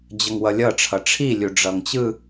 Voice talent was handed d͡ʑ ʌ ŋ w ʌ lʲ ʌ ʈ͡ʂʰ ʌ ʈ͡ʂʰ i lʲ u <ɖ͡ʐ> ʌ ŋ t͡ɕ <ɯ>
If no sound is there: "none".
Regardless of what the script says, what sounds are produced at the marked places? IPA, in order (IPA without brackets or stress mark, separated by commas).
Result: ɖ͡ʐ, ɯ